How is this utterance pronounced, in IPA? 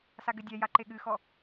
saɡɘdʲɛ jaǃeɠɨxɔ

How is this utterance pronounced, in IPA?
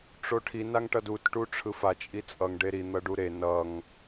ʈ͡ʂoʈʰi naŋʈʌdut ʈuʈ͡ʂʰɯfa t͡ʃʼit͡sʼʌŋ ɖeɾi n̪ʌɖuɾe nʌŋ

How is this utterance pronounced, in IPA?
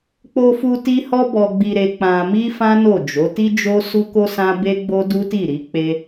k͡po˧fu˧ ti˦hɔ˦ bɔ˧ɡ͡bi˧ɾe˧ k͡pã˧mi˦ fã˦no˦˨d͡ʒo˨˦ ti˦d͡ʒo˦su˦ ko˦sã˦ be˦ɡ͡bo˦ du˦ti˦˨ɾi˨˦ k͡pe˦

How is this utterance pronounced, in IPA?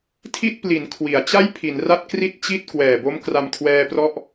tʰi˥˩t̚pli˩˦n kʰwi˩˦a̯ t͡ɕa˥˩jpʰi˩˦nra˦˥t̚ kri˥˩t̚t͡ɕi˥˩t̚ kwɛː˨˩bo˦˥m kra˧mkʰwɛː˧prɔ˦˥ʔ

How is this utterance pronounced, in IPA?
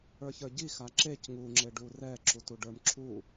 ə˞çə˞ɟi xaǁec ŋu ŋ͡ǁeɖurɛ ǁutuɖə˞m ǁʰu

